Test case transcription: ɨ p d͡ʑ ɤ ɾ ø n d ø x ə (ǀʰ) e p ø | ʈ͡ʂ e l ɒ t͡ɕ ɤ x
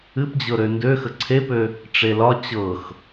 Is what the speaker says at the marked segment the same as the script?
yes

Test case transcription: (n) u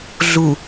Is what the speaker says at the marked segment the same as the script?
no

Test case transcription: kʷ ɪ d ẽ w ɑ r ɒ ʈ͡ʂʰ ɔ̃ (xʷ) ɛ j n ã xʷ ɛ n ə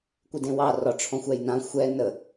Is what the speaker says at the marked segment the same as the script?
yes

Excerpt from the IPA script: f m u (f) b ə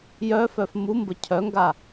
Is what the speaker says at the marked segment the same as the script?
no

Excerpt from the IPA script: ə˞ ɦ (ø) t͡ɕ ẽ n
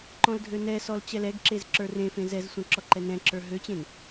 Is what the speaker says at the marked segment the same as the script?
yes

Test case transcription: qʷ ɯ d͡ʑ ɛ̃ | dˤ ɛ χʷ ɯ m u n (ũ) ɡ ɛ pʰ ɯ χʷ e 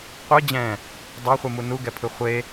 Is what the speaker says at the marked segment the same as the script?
no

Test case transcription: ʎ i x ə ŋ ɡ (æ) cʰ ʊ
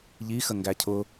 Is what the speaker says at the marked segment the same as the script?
yes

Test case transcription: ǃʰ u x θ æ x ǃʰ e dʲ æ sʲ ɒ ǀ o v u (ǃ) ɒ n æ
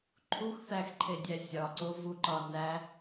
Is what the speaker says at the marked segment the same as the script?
yes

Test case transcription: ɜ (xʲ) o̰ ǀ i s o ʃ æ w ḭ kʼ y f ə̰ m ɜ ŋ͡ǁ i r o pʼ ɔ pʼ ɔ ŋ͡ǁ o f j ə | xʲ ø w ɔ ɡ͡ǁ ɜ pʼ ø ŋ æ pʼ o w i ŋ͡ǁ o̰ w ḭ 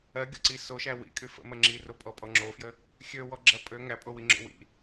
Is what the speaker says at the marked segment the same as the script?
no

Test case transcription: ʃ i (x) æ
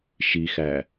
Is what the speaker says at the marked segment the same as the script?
yes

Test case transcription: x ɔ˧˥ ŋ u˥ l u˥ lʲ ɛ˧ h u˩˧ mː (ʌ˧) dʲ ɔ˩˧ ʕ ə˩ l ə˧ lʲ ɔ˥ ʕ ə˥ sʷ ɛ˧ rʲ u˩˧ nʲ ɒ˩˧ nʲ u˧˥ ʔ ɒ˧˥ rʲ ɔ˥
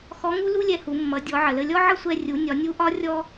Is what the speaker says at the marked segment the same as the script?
no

